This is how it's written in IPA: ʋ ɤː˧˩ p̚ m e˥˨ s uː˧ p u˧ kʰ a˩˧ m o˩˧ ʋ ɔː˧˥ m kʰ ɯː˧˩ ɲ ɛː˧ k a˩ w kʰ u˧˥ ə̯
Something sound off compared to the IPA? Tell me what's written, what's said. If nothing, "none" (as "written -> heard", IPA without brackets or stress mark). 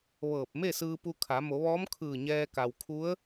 uː˧ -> ɯː˧